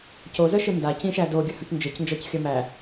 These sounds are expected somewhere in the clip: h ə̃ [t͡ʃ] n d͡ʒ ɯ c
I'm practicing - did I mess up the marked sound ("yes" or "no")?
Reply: yes